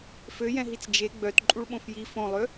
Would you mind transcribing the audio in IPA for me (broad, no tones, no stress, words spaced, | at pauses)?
føjɛ̃ɦit͡s d͡ʒe ɡ͡bœt ǃʼuɭɓõfji fõlˠø